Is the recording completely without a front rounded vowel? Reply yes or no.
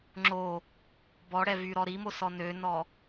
no